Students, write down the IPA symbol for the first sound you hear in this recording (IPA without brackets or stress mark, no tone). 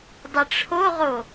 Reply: dˤ